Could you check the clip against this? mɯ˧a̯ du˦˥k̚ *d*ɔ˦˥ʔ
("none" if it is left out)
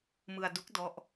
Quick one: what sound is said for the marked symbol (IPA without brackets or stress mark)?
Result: d